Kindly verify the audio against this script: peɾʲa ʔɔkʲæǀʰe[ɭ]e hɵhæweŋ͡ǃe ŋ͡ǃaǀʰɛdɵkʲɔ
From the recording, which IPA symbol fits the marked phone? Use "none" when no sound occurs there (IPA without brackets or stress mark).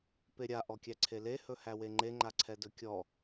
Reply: l